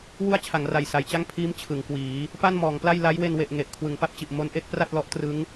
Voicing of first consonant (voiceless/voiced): voiced